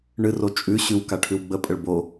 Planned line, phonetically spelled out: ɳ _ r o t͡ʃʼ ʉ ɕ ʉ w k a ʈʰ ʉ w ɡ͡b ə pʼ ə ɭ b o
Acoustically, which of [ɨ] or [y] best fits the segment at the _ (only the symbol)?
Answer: ɨ